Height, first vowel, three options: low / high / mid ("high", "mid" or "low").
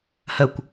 mid